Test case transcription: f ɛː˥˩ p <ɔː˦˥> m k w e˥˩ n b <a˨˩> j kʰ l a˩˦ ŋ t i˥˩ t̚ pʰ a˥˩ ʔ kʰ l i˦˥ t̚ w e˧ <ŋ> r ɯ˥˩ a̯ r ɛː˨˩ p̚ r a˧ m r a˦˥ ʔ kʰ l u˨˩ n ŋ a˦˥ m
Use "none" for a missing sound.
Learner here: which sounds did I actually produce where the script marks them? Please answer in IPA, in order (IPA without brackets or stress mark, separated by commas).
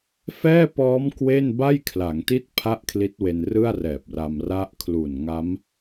ɔː˦˥, a˥˩, n